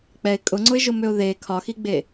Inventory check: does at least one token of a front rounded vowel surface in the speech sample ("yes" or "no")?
yes